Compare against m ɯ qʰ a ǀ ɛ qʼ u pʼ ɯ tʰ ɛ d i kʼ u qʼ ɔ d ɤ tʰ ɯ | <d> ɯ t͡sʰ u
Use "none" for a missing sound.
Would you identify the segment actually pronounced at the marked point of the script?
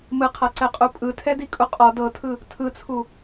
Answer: tʰ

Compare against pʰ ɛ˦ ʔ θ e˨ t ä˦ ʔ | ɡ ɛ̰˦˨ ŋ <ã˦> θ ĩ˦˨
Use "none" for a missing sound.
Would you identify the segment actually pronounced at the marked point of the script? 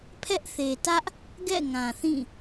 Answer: ã˨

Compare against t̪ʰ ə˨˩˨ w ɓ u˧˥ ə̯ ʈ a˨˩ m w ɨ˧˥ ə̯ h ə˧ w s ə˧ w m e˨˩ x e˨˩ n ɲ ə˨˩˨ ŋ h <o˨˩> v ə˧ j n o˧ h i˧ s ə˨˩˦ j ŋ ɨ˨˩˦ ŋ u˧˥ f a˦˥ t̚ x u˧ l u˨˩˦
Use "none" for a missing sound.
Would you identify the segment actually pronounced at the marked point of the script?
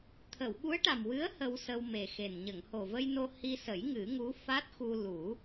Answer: o˨˩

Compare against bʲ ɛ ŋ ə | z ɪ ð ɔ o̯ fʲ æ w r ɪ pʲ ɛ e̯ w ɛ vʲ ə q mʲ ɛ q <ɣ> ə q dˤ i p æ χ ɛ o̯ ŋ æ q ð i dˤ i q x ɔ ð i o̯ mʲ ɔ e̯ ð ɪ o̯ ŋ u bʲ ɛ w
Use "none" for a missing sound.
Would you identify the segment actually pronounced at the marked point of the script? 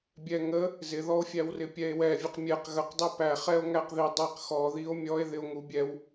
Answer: ɣ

